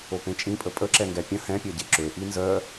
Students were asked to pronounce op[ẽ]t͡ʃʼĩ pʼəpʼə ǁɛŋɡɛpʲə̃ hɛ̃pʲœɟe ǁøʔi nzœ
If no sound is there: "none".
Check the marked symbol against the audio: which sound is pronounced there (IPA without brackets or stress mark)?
ẽ